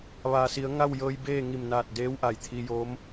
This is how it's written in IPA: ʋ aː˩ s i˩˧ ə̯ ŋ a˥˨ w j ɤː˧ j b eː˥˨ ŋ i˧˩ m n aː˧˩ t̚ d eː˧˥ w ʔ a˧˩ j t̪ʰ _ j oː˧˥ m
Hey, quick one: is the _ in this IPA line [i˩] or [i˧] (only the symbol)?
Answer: i˧